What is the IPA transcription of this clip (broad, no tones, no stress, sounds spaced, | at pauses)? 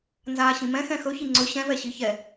n z aː ɕ ĩ m ɛ̃ x ɛ̃ x ɵ ç i ŋ͡ǀ ɵ ɕ ɛ̃ v ɛ ɕ i ç ɛ